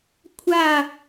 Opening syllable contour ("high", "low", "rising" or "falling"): falling